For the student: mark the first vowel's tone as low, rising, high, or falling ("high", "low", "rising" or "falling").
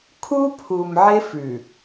high